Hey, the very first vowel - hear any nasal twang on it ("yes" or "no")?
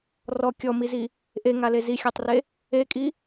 no